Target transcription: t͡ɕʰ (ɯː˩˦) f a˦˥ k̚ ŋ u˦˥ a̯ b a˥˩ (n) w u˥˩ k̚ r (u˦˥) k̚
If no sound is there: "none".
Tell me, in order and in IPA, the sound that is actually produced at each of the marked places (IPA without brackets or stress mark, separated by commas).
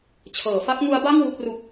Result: ɤː˩˦, ŋ, u˦˥